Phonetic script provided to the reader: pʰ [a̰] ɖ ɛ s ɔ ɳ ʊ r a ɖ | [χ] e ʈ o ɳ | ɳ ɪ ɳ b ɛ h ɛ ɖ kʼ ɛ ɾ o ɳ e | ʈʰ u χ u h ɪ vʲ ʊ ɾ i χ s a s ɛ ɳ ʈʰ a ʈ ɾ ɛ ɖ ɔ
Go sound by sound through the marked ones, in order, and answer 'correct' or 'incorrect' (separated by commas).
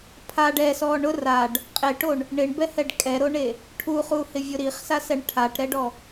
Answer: incorrect, incorrect